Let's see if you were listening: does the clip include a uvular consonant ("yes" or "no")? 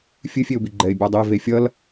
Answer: no